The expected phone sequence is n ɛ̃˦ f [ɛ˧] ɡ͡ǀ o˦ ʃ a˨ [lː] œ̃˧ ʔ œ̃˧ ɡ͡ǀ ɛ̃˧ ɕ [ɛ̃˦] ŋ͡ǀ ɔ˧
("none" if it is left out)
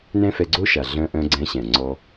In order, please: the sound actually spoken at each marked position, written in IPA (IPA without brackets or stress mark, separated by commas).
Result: ɛ˧, ɮ, ɛ̃˨